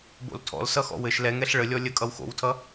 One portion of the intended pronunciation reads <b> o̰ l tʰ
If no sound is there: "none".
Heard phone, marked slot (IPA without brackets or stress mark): b